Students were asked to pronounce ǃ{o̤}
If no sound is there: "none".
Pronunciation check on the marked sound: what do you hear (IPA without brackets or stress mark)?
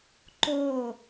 o